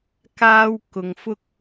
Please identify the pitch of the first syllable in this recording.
high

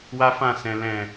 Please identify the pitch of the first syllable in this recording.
high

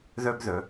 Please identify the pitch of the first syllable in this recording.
high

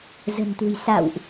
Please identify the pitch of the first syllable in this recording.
low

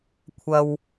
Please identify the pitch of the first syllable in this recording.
high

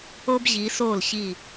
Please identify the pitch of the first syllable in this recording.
high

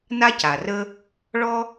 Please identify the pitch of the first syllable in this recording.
high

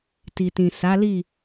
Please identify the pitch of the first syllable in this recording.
low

